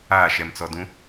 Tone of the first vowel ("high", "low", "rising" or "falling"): falling